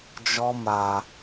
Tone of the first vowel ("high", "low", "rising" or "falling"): high